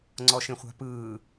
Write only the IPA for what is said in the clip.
ŋ͡ǀɔʃẽχʷa̤pɯː

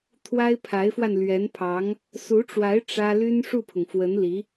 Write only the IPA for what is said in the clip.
t̪ʰwa˥ɪ̯pʰa˧˥ɪ̯fwa˧n lɥɛ˧˥npʰɑ˧˥ŋ | su˧˥ʈ͡ʂwa˧˥ɪ̯ ʈ͡ʂä˥ ly˥n ʂu˥˩pʰʊ˩ŋfwə˧˥nli˧˥

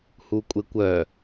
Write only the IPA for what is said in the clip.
hukʷʼɪkʷœ

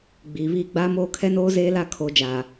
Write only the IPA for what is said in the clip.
ɡ͡biː˨βiː˦˨ ɡ͡baː˦moː˦kʰɛ˦noː˦ zeː˦la˦ kʰoː˨d͡ʒaː˨

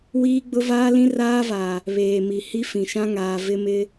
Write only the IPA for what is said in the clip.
wiː˦ɡ͡bʊ˦vaː˦lĩ˦ raː˦va˨ | βeː˨mi˨ hi˦fĩ˨ʃã˦ŋaː˨ vɪ˦mɪ˦

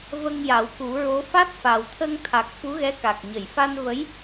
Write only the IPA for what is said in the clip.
və˧ŋja˨˩˦w ku˨˩˦ɹo˧˥ fa˦˥t̚fa˨˩wt̪ʰə˧ŋ t̪ʰa˨˩k̚ fu˧˥ɣɛ˧˥ka˨˩k̚ɲə˨˩˨j fa˧nvə˧˥j

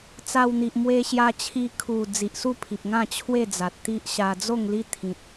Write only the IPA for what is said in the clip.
t͡sa˧wn̪i˨ʔmwe˧ ɕja˧t͡ɕʰi˧ kʰu˨˩ d͡zi˨ʔsu˥˧pʰi˨p̚ŋã˥˧ t͡ɕʰwe˥˧d͡za˨t̚ t̪i˦ʔɕa˧ d͡zo˥˧ŋli˦t̪ʰĩ˨t̚

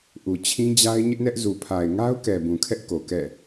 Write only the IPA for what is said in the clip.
ʔu˨t͡ɕʰĩ˦d͡ʑa˦ɪ̯ ɲɪ˦ʔnɛ˦ʔzu˨pʰa˨ɪ̯ ŋa˦ʊ̯kɛ˨ bũ˨kʰɛ˦ʔko˨ kɛ̰˦˨

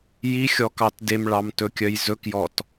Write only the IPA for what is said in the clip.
jixʲɔkɑt demɭɑmtɵkʲœj zɵkjɔt

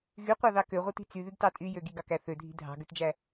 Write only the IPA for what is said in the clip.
ɣyqʷɑðɑ køʁʷɯti̤ t͡syðyɡtɑ tʼyjø ɡiɡɑkæ θødʱi̤ dʱɑ̤ɡøtd͡ʒæ

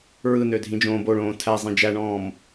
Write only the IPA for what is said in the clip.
ɹɯnø dʱĩd͡ʒõːboɭõː tʰæ zˤĩd͡ʒæɳɔ̃ːm

